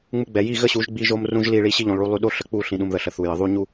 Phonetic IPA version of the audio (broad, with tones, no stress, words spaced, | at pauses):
ŋ͡mu˧ɡ͡bɛ˨ji˦˨ ɣə˦ɕu˨˦ʒ ɡ͡bi˦ʒo˦mrũ˦ʒli˦˨ ɭi˧ɕi˧ ʎũ˨lˠɭu˧lˠy˧ ɗo˦ɬə˧k͡pu˦˨ ɬĩ˨ɗũ˨mðə˨ ɬə˨θu˨jə˨ ðˤu˦ɲu˦